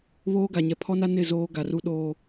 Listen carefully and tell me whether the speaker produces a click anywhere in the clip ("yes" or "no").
no